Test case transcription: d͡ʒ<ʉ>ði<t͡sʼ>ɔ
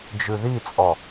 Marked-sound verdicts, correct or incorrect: correct, correct

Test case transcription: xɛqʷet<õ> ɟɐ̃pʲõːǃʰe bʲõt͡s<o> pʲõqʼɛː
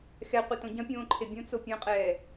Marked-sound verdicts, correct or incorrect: correct, correct

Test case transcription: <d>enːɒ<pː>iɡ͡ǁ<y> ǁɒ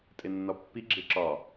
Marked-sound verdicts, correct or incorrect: incorrect: tʼ, correct, incorrect: e

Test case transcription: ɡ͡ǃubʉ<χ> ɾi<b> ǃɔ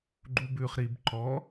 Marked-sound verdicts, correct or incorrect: correct, correct

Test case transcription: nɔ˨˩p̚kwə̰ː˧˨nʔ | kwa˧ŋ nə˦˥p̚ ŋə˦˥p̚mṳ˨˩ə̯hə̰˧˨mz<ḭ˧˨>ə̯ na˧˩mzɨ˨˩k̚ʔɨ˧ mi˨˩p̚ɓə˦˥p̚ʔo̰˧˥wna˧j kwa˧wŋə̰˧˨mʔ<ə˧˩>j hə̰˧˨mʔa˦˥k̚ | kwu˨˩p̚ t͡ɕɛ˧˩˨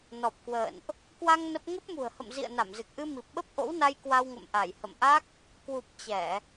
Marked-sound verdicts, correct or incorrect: correct, incorrect: a˧˩

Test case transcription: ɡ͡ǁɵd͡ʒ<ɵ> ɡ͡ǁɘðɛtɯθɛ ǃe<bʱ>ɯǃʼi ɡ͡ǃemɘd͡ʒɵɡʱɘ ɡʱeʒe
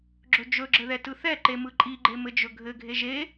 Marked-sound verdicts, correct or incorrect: correct, incorrect: m

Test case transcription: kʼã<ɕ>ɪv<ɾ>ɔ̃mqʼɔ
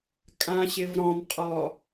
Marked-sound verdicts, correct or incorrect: correct, correct

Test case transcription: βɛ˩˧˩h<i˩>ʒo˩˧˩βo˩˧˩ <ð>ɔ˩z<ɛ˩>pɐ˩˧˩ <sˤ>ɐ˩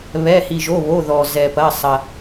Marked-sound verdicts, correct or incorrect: correct, correct, correct, correct

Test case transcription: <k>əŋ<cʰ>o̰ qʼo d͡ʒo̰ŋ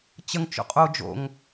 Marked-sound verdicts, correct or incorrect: incorrect: t͡ɕ, incorrect: t͡ʃ

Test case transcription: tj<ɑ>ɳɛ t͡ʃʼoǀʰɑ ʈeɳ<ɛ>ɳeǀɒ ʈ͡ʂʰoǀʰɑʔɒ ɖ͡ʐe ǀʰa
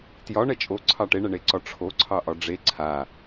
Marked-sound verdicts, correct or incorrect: incorrect: ɒ, correct

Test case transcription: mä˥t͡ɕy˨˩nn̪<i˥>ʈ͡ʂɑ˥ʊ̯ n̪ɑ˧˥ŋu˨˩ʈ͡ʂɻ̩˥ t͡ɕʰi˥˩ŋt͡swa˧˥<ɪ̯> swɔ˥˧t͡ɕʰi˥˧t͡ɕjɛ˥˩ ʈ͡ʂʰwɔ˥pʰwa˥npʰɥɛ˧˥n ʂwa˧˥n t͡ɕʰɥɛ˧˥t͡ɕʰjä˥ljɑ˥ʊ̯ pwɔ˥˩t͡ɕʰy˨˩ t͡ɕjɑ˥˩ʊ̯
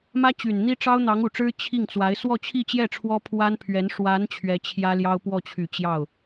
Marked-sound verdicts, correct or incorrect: correct, correct

